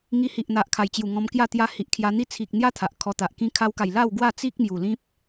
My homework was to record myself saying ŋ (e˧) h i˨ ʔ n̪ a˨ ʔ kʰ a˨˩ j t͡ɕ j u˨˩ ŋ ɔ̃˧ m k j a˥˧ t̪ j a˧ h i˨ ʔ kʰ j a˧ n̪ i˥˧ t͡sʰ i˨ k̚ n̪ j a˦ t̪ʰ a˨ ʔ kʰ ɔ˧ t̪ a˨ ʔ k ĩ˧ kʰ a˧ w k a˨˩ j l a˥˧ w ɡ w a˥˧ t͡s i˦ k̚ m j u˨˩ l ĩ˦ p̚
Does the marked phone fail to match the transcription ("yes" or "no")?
yes